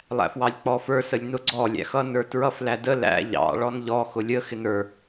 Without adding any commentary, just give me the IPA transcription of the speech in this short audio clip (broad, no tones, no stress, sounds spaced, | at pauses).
lˠ æ̰ f w ɑ lʲ k͡p ɔ f ə˞ s ə lʲ n ʊ ɡ͡ǀ ɔ lʲ æ̰ x ʌ n ə˞ t ɹ ʌ f l æ d ə l æ̰ ʎ ɑ̰ ɭ ɔ n ʎ ɔ x ʊ lʲ ə x ɪ n ə˞